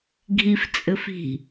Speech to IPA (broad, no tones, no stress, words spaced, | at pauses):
ɡʱift͡sʼɘf i̤